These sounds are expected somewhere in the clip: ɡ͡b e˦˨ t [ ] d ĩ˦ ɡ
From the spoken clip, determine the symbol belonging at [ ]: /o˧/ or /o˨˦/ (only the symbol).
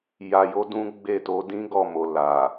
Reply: o˨˦